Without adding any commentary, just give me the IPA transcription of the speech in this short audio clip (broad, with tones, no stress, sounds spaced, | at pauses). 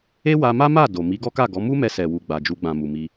e˦ w a˧ m a˦ m a˦˨ d o˨ m i˨˦ ɡ ɔ˦ k a˦˨ ɡ ɔ˨˦ m u˦ m ɛ˧ s ɛ˨ w u˨ ɡ͡b a˨ d͡ʒ u˧ ɡ͡b ã˨ m u˨ m i˧